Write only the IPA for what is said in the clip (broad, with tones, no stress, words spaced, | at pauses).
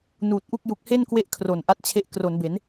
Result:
nuː˨˩t̚ʔu˥˩k̚ ju˨˩k̚he˥˩nkwe˦˥ʔ kʰro˨˩n ʔa˦˥t̚t͡ɕʰe˦˥ʔ kro˩˦nbe˩˦n